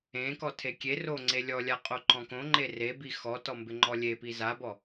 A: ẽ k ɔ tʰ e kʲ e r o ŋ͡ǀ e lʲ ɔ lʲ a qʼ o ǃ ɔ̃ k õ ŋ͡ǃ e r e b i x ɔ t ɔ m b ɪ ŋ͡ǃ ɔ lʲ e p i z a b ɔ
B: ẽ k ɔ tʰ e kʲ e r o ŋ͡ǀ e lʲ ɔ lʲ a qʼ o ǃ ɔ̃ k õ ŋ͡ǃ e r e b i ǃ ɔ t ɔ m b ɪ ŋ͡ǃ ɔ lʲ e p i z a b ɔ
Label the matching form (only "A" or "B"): A